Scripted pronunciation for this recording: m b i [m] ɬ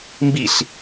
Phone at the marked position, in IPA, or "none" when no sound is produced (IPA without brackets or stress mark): none